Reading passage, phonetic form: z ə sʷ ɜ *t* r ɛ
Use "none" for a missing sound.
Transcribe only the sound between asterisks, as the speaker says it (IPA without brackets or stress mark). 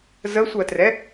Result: t